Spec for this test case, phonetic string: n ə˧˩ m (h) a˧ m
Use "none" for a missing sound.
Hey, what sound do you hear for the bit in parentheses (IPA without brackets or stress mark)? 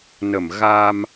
ɣ